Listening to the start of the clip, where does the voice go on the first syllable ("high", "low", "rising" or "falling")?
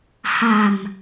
low